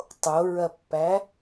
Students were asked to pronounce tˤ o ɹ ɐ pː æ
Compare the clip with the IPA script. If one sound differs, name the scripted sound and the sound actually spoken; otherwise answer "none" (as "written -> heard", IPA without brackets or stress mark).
none